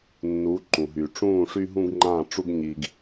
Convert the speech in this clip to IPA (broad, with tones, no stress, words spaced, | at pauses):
nːu˨˦ǃũ˨ɦy˨ ʈ͡ʂũː˦˨ʂy˦ɦũ˦ɡŋ͡ǃã˦˨ ʈ͡ʂu˦ɡɲiː˨ɡ